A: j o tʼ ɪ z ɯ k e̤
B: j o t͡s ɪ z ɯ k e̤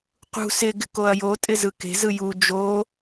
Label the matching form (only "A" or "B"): A